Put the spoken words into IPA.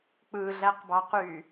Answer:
k͡pɯɮæqbɑqy

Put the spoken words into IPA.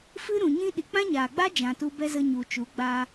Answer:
fɨ˦ ɾũ˨ɲĩ˦ ɗi˨k͡pã˦ɲaː˨ɡ͡ba˦ d͡ʒã˨tu˧bɛ˦ zə˧ɲu˨ t͡ʃu˨˦ɡ͡baː˦

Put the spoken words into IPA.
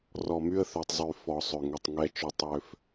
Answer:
rɔ˨my˦ə̯ θø˨tˤzˤy˨fɔ˨sˤø˨ ŋɛ˨tˤŋɛ˦˨t͡ʃɵ˦tˤø˦f

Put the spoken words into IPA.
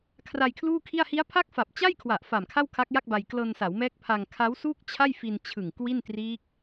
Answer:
kʰra˧j kʰluː˥˩kʰi˥˩a̯ hi˦˥a̯pʰa˥˩k̚fa˨˩p̚ t͡ɕa˥˩jkʰwa˨˩ʔ fa˨˩mkʰa˥˩w kʰa˦˥k̚ja˥˩k̚ba˧j klɤː˧nsa˩˦wmɛː˦˥k̚pʰa˧ŋ kʰa˦˥w suː˥˩k̚t͡ɕʰa˥˩jfi˧n t͡ɕʰɯ˨˩ŋkwi˥˩ntriː˦˥k̚

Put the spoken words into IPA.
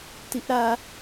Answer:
tiʔɾa

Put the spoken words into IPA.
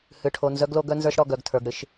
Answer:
hɨ˩˧˩ʈʰo˩˧˩nzœ˦ɡ lo˦ ɡœ˦nzə˞˦ʃɽɔ˩˧˩ɡ œ˩˧˩ɡtʰə˞˩˧˩ɡɽɨ˦ʃ

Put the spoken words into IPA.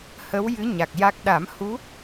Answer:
hə˧˥wjɨ˧˥ ɲa˨˩k̚ ja˦˥k̚ ɗa˨˩˦mhu˧˥

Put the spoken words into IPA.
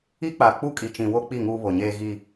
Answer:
i˦k͡pa˨ k͡pu˦kʼi˨t͡ʃĩ˨wo˦ k͡pi˦˨ŋuː˦βo˨ɲeː˦ ɣi˦

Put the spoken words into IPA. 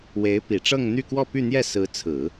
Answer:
we˧˥ɪ̯ pi˨˩ʈ͡ʂɤ˥˧ŋn̪y˥˧ kwɔ˥˧py˥˧n̪jɛ˥˩ sɹ̩˧˥ t͡sʰɹ̩˨˩˦

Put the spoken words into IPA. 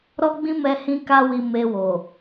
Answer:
ɾɔ˦ɡ͡bĩ˦ mɛ˧ hĩ˦ka˦wi˧ me˧wo˨

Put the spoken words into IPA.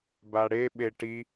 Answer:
baɽe ɓeʈi

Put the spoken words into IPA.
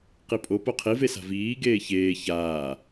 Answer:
qipʼo poqʰivesa̤ viː ɡeːçeː çaː

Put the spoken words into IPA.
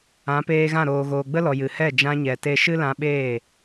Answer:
ã˨˦peː˧ɣã˦˨ ɾoː˨ɣoː˨ɡ͡bə˦lɔ˨ jɨ˨hɛ˦˨ d͡ʒã˧ɲɛ˨te˧ ʃɨ˦lã˧ɓeː˦˨

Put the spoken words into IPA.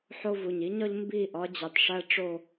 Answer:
ħo˦vu˨ɲ i˦ɲɒ˦ʎ mbi˦˨ʔɒ˦ d͡ʑi˨tˤʂæ˦ʈ͡ʂo˦

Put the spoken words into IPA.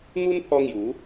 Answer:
n̪u˦npʰɔ˧ ŋju˨˦

